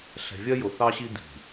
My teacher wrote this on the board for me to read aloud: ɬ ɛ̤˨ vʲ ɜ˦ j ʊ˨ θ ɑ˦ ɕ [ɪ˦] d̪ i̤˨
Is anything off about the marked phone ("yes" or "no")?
yes